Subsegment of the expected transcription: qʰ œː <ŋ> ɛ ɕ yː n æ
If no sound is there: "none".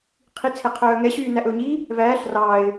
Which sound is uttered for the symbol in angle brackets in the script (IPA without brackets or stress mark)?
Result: ŋ